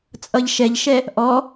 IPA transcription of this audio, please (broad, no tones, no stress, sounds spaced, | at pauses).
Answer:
t͡sʼ ʌ ʎ ʃ ɛ ʎ ʃ ɛ | ʔ ɔ